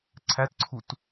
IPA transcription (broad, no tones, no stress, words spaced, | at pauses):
ǀʰætǀʰut